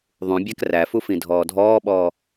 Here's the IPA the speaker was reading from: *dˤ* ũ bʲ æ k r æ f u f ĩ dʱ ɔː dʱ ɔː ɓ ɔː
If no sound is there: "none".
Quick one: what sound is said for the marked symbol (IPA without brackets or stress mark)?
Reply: ðˤ